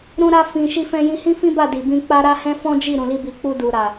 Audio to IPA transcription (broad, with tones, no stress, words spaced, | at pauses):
ɾũ˧ɾa˧ fĩ˨ ʃi˧fɛ̃˧jĩ˧ hĩ˦fĩ˦ba˦˨ di˨bĩ˧k͡pa˦ɾa˦ hɛ̃˦fɔ̃˦d͡ʒi˦˨ ɾũ˨li˧bi˨k͡pu˧ du˨ɾa˨